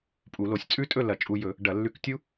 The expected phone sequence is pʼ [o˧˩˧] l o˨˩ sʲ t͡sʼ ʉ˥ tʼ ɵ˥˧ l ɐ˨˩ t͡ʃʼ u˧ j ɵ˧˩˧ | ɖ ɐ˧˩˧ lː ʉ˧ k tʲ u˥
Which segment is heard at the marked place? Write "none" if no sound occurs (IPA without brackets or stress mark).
u˧˩˧